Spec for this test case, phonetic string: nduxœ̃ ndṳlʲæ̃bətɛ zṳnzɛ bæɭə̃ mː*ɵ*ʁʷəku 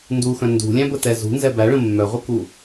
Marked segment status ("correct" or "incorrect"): incorrect